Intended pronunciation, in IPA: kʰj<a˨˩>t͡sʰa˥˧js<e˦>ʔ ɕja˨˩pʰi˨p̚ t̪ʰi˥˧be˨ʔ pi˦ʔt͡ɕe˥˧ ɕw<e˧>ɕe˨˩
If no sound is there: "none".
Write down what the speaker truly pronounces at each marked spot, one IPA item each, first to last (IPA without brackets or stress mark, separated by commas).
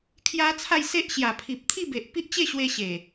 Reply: a˦, e˦, e˧